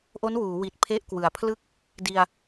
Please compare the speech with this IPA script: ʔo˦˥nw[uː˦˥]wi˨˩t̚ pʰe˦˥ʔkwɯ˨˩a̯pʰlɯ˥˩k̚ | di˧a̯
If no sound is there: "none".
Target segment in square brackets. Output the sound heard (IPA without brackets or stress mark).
uː˩˦